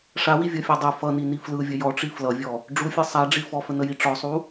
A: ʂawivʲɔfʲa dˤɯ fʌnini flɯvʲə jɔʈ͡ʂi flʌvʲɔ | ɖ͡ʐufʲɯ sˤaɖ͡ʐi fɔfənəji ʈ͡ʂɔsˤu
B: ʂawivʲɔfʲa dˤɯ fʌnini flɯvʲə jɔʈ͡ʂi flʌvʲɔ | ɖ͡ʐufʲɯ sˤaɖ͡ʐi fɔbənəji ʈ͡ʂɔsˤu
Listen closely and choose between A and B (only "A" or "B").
A